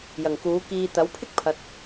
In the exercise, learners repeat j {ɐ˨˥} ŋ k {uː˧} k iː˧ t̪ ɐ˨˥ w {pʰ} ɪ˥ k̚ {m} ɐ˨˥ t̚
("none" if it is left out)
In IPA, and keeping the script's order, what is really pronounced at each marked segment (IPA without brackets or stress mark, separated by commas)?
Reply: ɐ˨˩, uː˨˥, pʰ, pʰ